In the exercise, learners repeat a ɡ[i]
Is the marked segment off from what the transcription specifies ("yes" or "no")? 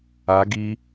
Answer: no